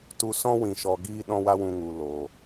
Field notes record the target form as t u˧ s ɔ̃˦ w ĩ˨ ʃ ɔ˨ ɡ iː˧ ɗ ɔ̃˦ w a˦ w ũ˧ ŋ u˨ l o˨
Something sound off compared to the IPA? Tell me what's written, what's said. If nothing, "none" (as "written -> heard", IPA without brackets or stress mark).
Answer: none